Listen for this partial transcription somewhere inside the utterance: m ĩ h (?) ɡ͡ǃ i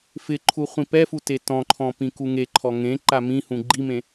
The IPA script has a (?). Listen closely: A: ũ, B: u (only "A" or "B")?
A